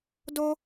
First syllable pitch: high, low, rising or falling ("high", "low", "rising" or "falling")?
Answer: high